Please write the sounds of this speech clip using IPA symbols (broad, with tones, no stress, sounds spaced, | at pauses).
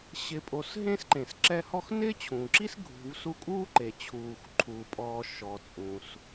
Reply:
ɕ ɪ˨ pʼ o˨ s ɦ ẽ˥ s ǃ ẽ˩ s ǁ ɛ˦ h ɔ˥ x n ɪː˥ t͡ɕʰ ũː˩ ǁ i˥ s ɡʱ ṳ˨ v s u˦ kʼ uː˥ ǃ e˩ t͡ɕʰ uː˩ x ǃʰ uː˩ pʼ ɔː˨ ʃ ɔ˨ t͡sʼ ũ˩ s